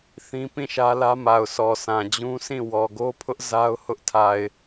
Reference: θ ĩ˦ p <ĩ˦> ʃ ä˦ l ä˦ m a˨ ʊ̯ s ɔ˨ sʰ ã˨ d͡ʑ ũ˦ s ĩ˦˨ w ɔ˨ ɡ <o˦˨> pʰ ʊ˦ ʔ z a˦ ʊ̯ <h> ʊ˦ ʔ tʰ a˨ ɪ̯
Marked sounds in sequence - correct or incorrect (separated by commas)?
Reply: incorrect, incorrect, correct